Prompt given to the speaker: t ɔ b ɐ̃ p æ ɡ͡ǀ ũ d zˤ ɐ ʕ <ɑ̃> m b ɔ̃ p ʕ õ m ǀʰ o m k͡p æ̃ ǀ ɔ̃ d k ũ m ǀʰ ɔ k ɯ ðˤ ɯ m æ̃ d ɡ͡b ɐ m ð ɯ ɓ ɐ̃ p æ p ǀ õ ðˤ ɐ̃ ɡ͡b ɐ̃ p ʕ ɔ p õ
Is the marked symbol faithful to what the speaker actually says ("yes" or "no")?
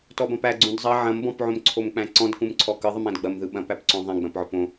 no